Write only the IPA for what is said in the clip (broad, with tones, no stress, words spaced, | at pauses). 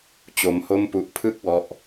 t͡ɕo˦˥mho˥˩mpu˦˥ʔ pʰɯ˥˩k̚wɔ˦˥ʔ